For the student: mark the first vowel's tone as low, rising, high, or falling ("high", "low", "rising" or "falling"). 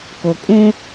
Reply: low